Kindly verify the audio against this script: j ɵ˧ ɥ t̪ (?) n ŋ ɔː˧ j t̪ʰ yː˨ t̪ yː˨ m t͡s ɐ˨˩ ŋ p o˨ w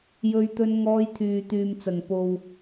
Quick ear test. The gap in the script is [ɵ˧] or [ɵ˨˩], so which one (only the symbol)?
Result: ɵ˧